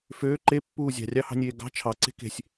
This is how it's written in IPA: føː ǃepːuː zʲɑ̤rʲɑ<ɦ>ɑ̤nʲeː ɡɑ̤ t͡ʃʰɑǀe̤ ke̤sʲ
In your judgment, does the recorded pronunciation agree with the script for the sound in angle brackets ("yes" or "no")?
no